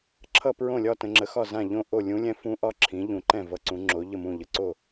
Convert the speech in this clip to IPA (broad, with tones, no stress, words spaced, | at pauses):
ǁʰʌ˥˧pɹõ˥˩lʲɒ˥˧tə̃˩˧ ŋ͡ǁə˩˥xɒ˥˩ zã˥˩ʎõ˥˧ʔo˥˩ lʲũ˧˥lʲɛ̃˧˥fũ˧˥ ʔɒ˥˧ ǁʰĩ˩˥ʎũ˩˧ǃɛ̃˥˩ vʌ˧˥ǀũ˩˥ŋ͡ǁo˩˥ ʎə˥˩mũ˥˩ʎə˩˥ǀo˥˩